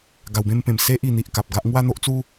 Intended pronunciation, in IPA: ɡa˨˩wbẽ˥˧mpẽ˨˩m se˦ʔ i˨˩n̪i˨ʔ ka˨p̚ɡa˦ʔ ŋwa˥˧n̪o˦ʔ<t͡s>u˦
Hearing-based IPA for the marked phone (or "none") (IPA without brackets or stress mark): t͡s